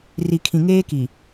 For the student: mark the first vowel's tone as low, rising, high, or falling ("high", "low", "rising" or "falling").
low